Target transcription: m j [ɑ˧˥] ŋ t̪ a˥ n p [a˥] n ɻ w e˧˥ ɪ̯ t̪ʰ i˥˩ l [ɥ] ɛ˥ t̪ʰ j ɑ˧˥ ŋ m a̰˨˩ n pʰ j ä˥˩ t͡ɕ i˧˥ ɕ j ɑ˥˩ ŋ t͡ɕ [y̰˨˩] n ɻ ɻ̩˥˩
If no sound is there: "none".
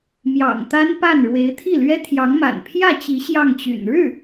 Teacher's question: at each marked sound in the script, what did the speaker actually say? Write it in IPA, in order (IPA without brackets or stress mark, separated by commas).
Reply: ɑ̰˨˩, a˥˩, ɥ, y̰˨˩